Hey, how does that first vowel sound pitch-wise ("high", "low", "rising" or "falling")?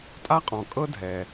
high